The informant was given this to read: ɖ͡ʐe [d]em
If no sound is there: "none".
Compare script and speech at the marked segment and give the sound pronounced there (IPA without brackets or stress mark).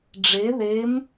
ð